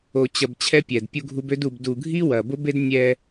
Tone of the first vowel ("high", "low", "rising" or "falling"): low